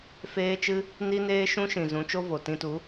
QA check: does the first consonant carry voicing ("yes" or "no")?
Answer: no